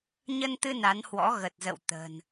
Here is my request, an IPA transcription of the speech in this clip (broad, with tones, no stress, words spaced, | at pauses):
ɲə˧nt̪ɨ˧ na˨˦nhwɔ̰˧˥ɣə˨˩t̚zə̰˧˨w t̪ə̤˨˩n